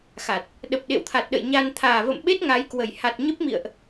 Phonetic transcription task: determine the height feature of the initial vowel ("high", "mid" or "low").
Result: low